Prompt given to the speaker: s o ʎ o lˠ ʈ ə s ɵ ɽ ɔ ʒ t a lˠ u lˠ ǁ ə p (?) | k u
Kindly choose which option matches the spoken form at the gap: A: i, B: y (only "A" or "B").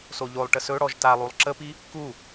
A